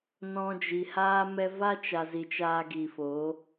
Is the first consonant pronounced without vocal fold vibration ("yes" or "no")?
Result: no